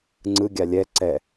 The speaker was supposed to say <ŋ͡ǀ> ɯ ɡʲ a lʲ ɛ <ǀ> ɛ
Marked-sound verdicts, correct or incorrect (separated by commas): correct, correct